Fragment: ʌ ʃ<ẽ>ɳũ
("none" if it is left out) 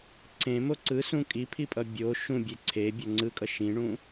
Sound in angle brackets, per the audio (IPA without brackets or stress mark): ĩ